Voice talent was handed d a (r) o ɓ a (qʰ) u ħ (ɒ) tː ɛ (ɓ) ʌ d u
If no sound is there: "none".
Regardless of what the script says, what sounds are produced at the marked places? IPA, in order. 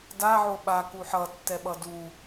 ʕ, k, ʌ, ɓ

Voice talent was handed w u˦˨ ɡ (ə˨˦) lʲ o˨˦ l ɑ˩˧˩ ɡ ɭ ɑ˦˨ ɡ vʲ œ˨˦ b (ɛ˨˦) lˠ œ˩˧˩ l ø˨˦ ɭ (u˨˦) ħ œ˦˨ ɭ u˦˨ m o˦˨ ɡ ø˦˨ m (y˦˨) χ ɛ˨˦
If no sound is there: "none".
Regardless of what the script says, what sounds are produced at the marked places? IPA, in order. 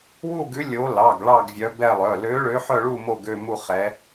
ʉ˨˦, ɛ˦˨, ø˨˦, u˦˨

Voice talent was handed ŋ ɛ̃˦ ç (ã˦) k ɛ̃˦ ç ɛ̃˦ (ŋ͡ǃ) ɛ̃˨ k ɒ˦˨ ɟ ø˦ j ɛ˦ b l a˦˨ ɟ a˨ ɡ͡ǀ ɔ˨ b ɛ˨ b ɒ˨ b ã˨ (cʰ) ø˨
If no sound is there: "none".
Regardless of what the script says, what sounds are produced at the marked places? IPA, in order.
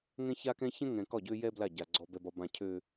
a˦, ŋ, cʰ

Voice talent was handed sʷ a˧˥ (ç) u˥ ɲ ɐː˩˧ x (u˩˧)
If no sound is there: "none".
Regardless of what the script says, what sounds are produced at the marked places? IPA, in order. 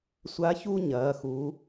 ç, u˩˧

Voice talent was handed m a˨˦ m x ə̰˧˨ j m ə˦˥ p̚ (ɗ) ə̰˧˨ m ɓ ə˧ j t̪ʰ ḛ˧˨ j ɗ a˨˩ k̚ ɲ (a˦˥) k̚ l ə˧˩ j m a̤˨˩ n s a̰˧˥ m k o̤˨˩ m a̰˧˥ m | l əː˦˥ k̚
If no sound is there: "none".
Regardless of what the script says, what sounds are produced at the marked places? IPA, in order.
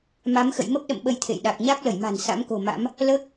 ɗ, a˦˥

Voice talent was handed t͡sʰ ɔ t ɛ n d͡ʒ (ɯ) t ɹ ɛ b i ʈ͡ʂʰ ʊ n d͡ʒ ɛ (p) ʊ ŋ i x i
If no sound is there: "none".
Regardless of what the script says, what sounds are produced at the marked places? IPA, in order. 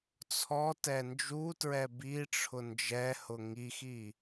u, h

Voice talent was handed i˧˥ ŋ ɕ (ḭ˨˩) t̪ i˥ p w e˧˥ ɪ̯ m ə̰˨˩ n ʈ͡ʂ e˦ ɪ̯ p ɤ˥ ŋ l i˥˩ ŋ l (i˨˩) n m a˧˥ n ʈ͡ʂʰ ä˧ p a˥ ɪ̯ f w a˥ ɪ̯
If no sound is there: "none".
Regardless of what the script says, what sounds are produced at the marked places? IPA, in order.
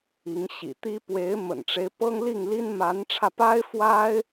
ḭ˨˩, i˥

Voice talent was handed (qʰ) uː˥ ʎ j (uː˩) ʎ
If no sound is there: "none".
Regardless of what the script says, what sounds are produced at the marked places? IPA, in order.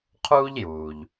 qʰ, uː˩

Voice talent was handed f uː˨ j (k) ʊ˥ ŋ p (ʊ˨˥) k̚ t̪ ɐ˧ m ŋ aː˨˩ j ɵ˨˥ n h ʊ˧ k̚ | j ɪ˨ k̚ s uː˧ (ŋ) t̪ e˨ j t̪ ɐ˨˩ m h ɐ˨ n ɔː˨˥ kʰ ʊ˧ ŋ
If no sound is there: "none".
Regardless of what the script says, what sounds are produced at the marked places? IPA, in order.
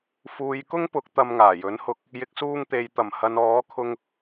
k, ʊ˨˥, ŋ

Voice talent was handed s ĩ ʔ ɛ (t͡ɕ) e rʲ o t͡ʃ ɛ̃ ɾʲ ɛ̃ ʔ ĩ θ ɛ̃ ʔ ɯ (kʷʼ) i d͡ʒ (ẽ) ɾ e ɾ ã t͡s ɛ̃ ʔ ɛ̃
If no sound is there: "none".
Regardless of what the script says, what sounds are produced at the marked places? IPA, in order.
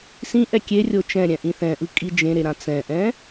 kʲ, kʼ, ẽ

